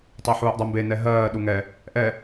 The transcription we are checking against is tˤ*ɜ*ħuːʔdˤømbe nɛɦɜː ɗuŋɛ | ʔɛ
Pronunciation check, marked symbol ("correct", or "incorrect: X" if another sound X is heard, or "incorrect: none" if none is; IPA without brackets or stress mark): correct